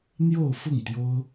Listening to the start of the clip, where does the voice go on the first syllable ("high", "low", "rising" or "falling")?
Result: falling